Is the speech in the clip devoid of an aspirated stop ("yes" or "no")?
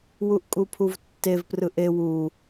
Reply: no